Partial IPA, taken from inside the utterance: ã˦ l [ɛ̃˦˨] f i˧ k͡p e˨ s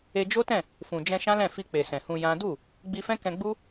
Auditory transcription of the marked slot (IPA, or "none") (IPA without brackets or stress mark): ɛ̃˦˨